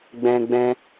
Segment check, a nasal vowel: present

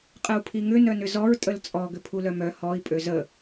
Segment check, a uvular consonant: present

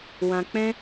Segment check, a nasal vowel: present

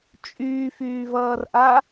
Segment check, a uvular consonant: absent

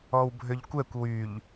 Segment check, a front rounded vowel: present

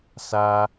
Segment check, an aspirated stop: absent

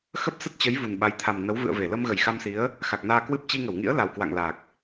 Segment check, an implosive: present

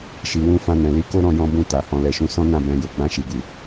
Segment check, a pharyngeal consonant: absent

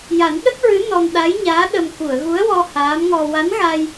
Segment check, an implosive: present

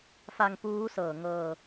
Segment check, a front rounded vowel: absent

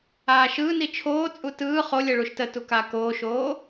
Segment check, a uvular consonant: present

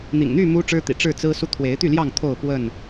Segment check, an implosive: absent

